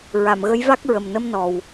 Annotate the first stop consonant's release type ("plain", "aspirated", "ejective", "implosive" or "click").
plain